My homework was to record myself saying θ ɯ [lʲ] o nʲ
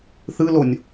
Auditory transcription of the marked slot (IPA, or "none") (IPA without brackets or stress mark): l